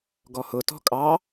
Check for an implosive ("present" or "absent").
absent